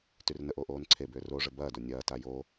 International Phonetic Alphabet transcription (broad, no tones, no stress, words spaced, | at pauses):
tyrnəʔoːʔ oːnǀʰebʏː roʐə bɐːdo nʲɐːta jo